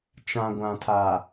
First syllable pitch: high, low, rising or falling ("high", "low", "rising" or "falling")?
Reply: low